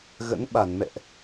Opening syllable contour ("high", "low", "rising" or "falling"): rising